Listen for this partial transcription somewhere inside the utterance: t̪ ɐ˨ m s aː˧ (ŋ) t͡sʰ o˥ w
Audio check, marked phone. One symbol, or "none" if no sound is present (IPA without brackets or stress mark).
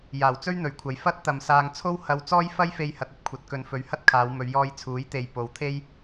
ŋ